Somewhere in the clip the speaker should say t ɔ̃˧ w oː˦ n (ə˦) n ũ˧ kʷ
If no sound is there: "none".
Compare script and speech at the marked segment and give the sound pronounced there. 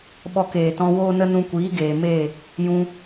ə˦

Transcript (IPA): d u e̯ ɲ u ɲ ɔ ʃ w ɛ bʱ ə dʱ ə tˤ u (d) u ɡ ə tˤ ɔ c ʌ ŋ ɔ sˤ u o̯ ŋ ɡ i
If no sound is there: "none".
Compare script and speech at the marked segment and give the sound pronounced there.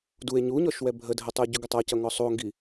ɟ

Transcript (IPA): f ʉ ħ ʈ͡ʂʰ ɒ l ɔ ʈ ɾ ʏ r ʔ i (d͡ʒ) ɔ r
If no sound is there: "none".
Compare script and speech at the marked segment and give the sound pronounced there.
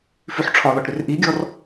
ɡʲ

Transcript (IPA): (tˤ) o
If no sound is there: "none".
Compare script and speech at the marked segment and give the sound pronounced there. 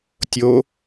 tʲ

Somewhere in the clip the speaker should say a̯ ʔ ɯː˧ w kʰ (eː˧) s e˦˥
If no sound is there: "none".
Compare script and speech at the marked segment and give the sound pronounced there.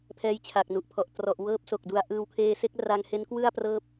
eː˧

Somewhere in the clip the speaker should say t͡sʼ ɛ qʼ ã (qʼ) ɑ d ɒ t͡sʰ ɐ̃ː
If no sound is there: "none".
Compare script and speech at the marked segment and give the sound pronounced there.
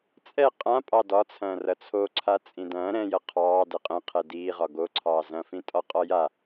pʼ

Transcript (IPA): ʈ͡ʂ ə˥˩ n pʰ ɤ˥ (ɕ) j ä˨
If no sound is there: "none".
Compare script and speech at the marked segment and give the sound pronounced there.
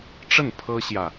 ɕ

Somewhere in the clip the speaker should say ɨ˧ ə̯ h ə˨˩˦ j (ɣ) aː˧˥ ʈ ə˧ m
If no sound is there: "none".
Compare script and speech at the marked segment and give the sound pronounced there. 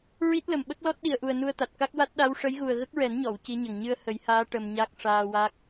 h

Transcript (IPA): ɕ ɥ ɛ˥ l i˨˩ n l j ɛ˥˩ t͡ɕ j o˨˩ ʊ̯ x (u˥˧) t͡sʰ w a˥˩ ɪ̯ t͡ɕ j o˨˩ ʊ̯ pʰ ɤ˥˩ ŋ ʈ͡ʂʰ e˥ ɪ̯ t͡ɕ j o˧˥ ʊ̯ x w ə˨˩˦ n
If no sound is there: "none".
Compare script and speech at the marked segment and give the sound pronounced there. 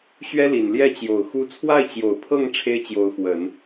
u˥˧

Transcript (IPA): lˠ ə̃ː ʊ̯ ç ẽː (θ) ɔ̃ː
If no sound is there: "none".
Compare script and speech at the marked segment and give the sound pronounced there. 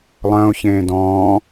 d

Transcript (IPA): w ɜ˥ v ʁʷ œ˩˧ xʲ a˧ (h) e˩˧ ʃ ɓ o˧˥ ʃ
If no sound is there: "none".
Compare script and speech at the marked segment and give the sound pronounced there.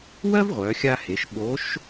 h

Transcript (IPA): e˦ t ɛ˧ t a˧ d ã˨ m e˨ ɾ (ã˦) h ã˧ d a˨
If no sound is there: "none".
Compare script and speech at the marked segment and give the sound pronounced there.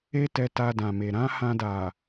ã˨˦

